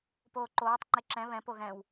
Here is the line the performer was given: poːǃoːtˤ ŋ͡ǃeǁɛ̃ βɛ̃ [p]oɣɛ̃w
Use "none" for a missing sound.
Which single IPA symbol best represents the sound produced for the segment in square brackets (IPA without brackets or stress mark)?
p